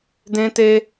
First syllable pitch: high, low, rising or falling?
high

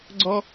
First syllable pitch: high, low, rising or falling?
high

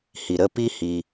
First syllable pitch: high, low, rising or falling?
low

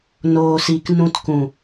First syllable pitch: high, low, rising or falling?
low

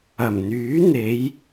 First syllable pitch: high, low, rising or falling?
low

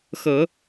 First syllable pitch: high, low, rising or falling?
low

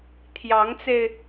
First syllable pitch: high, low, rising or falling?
rising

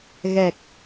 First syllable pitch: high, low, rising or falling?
low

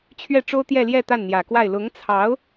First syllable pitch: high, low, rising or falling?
falling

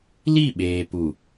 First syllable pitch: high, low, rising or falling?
falling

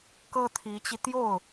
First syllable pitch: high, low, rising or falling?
high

